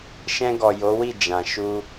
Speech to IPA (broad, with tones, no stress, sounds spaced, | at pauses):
ʃ ɛ̃˧ ɡ ɔ˨ j o˨˦ w i˦˨ d͡ʒ ã˨ ʃ u˧